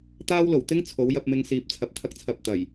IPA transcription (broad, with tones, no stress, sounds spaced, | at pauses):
t̪ aː˥ w l o˨˩ w t̪ ɪ˥ ŋ t͡sʰ o˨˥ w j ɐ˧ p̚ m ɪ˧ ŋ s iː˨ p̚ t͡sʰ ɐ˨˥ p̚ t̪ʰ ɐ˧ k̚ t͡sʰ ɐ˧ p̚ t̪ ɐ˨˩ j